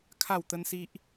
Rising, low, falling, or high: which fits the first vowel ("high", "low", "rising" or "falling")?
falling